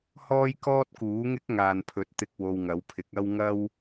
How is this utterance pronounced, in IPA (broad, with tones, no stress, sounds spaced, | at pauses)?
h ɔː˥ j k ɔː˥ t̚ k uː˨˥ ŋ ɪ˥ k̚ ŋ aː˨ n pʰ ɵ˨˥ t̚ t̪ ɪ˧ k̚ w o˧ w ŋ ɐ˨˥ w pʰ ɪ˨˥ k̚ ɐ˥ w ŋ ɐ˥ w